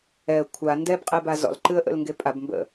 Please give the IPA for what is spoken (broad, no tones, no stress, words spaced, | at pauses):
ɛə̯ kʷʰa ndɛbqʼeba zɔ̰lǃɨə̯ʔə̰l ŋɡepʼabmbə̰